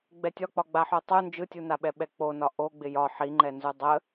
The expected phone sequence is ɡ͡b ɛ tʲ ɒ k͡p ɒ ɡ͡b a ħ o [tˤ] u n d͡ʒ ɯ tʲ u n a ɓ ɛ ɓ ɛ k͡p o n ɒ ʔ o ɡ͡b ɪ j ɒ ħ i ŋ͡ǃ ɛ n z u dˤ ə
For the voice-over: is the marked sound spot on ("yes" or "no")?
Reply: yes